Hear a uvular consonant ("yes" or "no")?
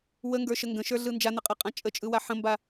yes